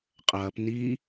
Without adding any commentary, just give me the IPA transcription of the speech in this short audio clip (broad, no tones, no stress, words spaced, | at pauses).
qʼɐːp niː